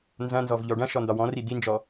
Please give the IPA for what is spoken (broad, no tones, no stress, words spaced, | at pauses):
nzɐ̃nzɔvʎɔ ɖɐ̃ʃɔndɒ wɔ̃ri d̪ind͡ʒɔ